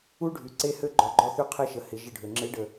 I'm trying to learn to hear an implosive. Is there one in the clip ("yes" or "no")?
no